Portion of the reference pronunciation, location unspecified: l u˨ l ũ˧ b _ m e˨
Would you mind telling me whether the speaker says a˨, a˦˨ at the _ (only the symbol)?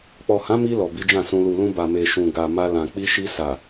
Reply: a˨